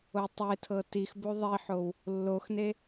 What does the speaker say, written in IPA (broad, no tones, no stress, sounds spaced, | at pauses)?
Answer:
o tˤ e tʰ ɤ t i x b u ðˤ i ħ o w | lː o x n e